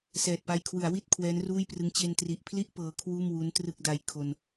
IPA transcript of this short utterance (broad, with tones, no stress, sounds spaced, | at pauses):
s ɛː˨˩ t̚ p a˧ j kʰ w ɯ˩˦ a̯ w i˥˩ t̚ kʰ w ɛː˦˥ n r uː˥˩ j p r ɯ˦˥ ŋ t͡ɕ e˧ n t r i˨˩ ʔ pʰ l i˥˩ ʔ p ɤː˦˥ kʰ w uː˥˩ m w u˦˥ n t r ɯ˥˩ k̚ d a˧ j kʰ o˧ n